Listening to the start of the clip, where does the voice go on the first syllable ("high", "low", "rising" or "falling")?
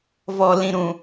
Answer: low